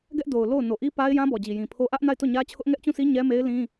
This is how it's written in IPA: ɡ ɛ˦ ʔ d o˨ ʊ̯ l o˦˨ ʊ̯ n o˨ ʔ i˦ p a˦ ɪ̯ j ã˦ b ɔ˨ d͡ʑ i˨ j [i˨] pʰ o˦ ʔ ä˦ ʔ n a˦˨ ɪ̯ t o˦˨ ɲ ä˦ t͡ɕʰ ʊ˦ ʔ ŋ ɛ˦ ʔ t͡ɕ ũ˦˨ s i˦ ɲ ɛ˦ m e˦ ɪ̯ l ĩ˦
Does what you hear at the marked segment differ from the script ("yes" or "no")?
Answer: yes